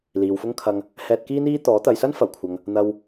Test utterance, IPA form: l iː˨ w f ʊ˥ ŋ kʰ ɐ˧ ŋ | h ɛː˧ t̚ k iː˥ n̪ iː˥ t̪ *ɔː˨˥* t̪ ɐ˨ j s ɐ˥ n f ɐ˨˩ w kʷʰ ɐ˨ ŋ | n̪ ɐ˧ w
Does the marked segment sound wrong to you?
no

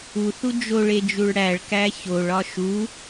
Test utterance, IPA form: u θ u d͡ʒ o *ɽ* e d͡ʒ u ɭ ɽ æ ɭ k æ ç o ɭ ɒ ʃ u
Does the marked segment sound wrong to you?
yes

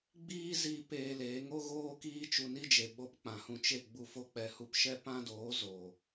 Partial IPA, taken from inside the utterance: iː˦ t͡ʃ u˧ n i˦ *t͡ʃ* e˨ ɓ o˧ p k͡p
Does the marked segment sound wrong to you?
yes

